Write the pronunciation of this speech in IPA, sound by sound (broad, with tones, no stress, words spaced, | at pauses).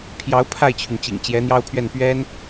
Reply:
pʰjɑ˧˥ʊ̯ pʰa˥˩ɪ̯t͡ɕʰy˩nt͡ɕḭ˨˩ŋ t͡ɕjɛ˧˥n̪jɑ˥ʊ̯pʰɥɛ˥˩n pɥɛ˥n